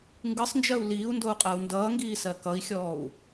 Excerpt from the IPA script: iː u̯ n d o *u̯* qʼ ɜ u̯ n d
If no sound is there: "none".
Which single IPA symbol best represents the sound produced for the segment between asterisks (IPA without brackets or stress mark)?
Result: u̯